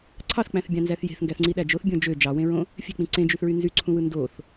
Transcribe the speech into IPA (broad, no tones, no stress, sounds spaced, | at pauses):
ǀʰ ɑ θ k͡p æ̃ θ bʲ ɑ̃ n z æ θ j e̤ θ ŋ ɡ æ θ ŋ͡ǀ i ɗ æ d͡ʒ o θ bʲ õ d͡ʒ ø d͡ʒ ɑ w ẽ ɹ õ | fʲ e̤ k͡p ĩ ǀ ẽ d͡ʒ y θ ɹ y n z y ǀʰ ũ w ɯ n d o θ